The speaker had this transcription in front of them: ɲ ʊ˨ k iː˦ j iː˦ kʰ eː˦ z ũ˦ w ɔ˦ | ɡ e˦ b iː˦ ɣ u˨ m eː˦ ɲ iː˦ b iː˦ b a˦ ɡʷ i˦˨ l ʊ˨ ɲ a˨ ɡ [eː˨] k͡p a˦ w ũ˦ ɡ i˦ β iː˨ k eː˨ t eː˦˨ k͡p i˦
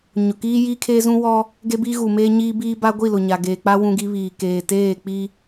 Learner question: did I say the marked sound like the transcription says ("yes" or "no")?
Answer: yes